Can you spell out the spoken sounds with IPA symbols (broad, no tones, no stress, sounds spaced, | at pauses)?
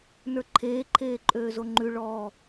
n ə˞ ǃʰ eː ǃʰ eː ǃʼ øː z o ŋ͡ǃ ʉ ɭ ɔː